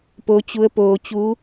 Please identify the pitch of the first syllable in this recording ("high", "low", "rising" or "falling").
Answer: rising